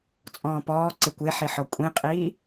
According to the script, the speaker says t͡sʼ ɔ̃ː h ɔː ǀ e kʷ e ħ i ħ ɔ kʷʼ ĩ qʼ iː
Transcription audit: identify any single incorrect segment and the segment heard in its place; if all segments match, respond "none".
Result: h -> p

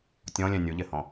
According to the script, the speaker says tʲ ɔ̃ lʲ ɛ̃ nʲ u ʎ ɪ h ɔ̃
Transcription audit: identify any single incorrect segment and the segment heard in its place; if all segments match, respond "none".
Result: none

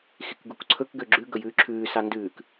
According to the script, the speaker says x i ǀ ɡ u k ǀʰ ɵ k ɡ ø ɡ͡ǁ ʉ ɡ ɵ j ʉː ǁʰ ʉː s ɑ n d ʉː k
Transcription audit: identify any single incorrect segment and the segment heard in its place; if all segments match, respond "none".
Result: ǀ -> k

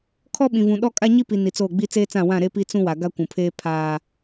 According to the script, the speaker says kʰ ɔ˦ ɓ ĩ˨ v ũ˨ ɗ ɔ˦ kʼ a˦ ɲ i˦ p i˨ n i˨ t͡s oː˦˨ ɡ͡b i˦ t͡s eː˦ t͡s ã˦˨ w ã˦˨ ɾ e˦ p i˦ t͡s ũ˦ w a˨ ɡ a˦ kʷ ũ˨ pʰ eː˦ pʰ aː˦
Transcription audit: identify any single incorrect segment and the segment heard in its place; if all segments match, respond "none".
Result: none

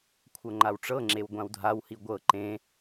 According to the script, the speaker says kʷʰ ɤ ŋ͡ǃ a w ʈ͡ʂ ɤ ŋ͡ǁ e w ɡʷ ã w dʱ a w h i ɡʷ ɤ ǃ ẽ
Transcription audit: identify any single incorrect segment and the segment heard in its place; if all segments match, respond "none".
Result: none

